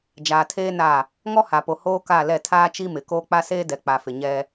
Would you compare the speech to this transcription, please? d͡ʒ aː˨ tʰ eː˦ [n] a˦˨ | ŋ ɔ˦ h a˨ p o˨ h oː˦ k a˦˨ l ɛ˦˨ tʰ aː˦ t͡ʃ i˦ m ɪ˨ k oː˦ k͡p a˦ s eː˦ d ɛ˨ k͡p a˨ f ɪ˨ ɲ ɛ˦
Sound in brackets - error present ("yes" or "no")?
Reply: no